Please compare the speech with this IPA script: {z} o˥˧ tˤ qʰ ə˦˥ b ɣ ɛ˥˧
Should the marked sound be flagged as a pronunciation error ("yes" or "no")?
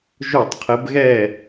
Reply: yes